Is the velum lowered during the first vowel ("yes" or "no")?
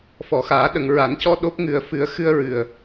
no